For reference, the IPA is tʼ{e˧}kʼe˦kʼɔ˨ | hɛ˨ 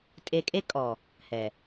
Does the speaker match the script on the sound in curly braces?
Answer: yes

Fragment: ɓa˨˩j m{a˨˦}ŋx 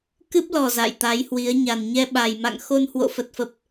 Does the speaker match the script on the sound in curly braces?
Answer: no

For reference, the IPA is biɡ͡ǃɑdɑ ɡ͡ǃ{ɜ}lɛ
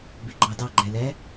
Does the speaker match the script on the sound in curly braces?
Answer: no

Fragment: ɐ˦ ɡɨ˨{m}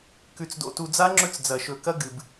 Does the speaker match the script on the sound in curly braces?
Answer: no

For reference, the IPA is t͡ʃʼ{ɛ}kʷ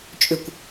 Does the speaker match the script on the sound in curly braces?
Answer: no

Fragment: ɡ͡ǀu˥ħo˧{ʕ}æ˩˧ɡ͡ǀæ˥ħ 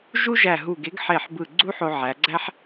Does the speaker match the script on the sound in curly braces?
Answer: yes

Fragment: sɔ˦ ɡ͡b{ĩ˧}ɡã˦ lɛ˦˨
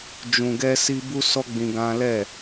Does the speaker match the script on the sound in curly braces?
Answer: yes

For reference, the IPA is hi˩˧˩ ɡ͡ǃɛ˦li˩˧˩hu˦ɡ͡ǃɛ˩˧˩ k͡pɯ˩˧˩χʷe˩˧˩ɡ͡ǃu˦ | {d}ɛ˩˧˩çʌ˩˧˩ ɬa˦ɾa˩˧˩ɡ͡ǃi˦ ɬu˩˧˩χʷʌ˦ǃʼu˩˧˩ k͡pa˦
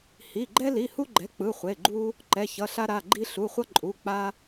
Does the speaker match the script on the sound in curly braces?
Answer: no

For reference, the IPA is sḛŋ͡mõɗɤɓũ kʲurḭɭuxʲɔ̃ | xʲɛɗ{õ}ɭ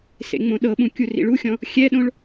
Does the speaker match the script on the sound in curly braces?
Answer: yes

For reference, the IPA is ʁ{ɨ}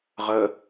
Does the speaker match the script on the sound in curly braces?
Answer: no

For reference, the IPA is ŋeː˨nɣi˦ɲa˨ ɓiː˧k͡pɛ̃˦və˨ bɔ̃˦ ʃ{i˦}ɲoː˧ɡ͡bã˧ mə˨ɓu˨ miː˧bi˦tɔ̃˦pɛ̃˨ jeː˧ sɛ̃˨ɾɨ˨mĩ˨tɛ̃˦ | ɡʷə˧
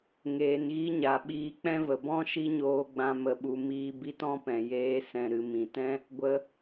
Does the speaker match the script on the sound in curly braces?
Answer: yes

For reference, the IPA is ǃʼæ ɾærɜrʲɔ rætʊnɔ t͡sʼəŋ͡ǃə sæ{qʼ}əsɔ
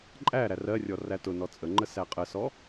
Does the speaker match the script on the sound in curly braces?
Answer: yes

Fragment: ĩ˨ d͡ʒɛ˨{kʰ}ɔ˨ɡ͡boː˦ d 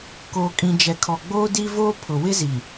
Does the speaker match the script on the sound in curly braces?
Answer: yes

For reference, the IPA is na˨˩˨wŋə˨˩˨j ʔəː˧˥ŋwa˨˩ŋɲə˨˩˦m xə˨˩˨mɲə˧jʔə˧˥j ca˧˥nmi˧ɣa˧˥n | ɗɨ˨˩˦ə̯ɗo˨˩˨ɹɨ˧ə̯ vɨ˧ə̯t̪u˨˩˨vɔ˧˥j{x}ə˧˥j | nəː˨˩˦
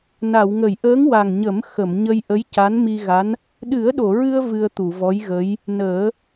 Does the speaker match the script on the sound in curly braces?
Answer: no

